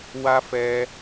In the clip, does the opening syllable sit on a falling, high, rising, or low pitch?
high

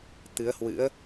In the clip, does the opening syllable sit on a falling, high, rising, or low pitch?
rising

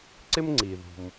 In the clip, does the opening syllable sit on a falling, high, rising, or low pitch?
high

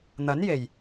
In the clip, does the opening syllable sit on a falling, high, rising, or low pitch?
rising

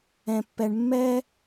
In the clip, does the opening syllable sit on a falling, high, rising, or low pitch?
low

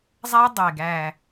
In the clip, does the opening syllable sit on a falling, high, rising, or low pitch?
high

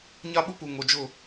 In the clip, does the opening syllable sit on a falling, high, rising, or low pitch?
high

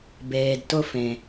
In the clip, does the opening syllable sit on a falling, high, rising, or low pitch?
low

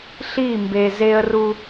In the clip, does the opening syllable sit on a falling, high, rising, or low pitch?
falling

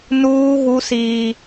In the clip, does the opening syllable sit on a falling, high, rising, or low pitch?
high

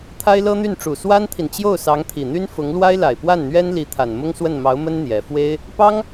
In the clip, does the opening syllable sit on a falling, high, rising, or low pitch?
high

